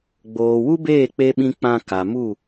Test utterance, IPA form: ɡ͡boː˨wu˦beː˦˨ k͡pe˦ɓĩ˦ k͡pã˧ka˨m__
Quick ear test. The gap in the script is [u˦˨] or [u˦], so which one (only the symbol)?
u˦˨